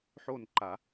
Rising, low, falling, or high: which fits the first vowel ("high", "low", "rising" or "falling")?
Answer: falling